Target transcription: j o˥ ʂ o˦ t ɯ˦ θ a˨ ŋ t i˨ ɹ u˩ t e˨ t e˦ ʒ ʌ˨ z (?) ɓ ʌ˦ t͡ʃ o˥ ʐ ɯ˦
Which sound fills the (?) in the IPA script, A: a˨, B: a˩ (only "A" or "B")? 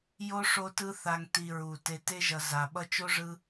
B